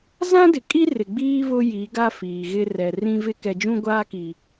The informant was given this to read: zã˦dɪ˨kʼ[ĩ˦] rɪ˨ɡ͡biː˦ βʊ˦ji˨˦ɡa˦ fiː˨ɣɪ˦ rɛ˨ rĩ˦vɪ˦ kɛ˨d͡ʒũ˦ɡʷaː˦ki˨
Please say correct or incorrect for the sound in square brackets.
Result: incorrect